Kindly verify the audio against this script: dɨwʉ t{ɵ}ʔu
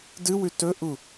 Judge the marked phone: correct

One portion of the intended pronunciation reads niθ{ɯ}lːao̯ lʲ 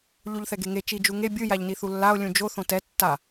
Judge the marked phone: incorrect: u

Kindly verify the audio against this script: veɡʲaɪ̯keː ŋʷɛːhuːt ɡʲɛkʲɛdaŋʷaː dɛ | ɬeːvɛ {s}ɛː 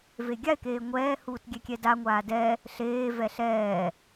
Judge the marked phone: incorrect: ɬ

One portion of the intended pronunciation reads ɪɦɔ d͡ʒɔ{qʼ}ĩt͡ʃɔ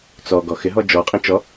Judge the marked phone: correct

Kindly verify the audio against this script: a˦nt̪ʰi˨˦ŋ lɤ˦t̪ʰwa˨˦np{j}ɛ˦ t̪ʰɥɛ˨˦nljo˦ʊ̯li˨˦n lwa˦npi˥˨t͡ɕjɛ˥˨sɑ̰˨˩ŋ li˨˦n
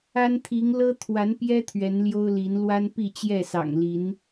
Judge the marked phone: correct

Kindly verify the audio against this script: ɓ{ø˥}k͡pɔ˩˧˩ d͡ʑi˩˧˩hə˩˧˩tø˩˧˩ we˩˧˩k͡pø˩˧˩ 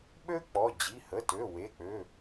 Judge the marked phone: correct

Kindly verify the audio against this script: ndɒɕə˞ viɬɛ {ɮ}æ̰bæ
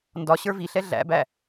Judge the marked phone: correct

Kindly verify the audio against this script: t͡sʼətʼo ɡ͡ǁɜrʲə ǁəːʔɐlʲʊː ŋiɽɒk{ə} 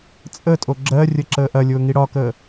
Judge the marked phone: incorrect: əː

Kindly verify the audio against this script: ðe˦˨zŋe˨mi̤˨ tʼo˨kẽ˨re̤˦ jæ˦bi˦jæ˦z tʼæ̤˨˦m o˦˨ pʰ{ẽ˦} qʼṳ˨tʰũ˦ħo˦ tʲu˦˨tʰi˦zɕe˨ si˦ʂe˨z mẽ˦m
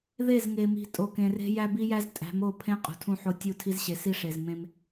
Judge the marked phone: correct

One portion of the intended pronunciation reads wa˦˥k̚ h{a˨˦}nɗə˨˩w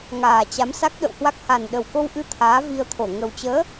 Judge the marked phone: incorrect: a˨˩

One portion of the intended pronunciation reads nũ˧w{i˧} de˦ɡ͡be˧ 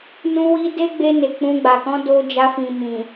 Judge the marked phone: correct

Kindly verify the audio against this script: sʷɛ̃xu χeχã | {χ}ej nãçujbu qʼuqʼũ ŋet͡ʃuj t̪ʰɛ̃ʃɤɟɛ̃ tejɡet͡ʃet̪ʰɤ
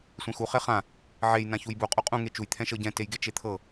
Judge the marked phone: incorrect: ʕ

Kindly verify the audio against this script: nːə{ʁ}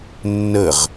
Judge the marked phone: correct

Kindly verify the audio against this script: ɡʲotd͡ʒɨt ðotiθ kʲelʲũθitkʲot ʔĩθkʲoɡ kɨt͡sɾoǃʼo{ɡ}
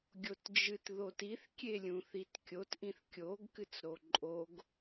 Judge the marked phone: correct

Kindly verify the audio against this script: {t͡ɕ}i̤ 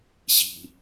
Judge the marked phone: incorrect: ɕ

